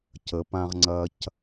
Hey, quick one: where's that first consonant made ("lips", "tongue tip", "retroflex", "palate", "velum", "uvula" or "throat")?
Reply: palate